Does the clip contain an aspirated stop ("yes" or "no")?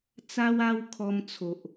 yes